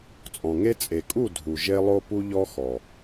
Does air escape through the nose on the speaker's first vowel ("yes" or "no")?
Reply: yes